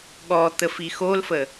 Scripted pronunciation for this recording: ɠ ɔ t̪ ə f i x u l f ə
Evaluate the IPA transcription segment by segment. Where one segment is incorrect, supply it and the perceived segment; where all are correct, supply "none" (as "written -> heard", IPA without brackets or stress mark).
u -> o